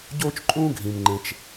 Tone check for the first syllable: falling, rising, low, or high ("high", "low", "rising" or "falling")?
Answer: high